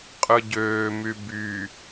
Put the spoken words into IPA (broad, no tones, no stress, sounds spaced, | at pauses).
qʼ ɯ ɟ øː m y b y